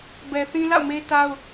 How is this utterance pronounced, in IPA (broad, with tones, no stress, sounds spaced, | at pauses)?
b ɛ˨ θ ĩ˦ l a̰˦˨ ʊ̯ m e˦ t a˦ ʊ̯